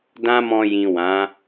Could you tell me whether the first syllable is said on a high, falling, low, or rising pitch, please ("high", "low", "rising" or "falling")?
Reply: high